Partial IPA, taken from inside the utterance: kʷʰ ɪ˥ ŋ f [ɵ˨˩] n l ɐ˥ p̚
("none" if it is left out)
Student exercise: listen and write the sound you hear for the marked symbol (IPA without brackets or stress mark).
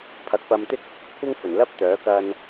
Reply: ɵ˨˩